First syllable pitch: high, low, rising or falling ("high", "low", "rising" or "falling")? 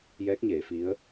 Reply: rising